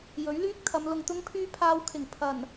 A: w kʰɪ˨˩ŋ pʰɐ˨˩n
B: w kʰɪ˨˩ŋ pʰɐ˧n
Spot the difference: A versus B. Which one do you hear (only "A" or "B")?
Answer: A